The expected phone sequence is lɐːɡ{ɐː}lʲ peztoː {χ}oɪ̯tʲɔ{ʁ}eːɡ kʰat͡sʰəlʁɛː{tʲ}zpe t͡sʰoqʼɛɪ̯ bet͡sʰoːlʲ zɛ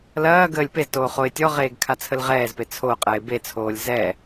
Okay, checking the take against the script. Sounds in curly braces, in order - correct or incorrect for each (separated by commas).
incorrect, correct, correct, incorrect